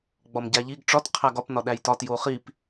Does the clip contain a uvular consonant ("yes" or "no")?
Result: yes